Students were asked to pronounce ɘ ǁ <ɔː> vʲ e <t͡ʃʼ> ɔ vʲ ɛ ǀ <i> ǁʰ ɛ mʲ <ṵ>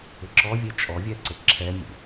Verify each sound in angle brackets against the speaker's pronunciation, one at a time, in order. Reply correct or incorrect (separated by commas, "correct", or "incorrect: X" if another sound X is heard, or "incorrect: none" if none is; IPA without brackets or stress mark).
incorrect: ɔ, correct, incorrect: e, correct